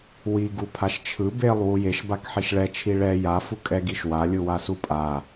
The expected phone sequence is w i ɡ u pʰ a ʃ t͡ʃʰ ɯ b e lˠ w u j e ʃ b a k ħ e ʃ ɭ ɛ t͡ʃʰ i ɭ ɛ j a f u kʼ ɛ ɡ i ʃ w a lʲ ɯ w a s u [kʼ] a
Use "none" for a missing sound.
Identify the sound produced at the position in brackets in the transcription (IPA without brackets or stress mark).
pʼ